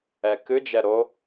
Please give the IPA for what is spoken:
ɛkɨd͡ʒɛ ɾo

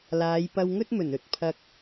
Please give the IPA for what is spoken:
laː˨˧j pɐ˧wŋɵ˥t̚mɵ˨˩n ɵ˧t̚ pʰɐ˧k̚

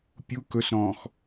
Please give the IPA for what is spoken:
pʲu kɵsɾɔ̃ːx

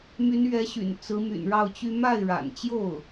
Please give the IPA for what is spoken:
my˧˥nɥɛ˧˥ɕy̰˨˩n t͡sɹ̩˧˥my̰˨˩nɻɑ˥˩ʊ̯t͡ɕy˥ ma˥˩ɪ̯ɻa̰˨˩nt͡ɕjo˥˩ʊ̯

